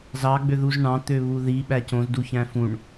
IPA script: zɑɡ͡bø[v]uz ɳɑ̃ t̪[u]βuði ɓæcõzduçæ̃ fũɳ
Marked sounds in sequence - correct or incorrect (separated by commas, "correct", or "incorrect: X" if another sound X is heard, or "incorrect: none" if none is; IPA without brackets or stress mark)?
incorrect: ð, incorrect: ø